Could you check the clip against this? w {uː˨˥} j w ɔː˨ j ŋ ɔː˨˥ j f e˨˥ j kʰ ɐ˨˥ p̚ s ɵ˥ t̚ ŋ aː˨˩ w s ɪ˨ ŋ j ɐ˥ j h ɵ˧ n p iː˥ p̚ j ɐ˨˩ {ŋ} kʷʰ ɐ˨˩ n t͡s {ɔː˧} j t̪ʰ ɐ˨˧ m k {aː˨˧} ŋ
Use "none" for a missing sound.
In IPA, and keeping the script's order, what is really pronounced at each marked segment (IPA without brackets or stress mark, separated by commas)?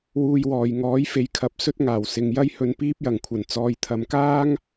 uː˧, ŋ, ɔː˨˧, aː˥